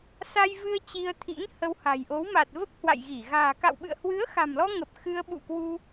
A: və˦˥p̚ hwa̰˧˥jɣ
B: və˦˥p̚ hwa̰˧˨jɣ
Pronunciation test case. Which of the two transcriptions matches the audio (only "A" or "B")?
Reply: B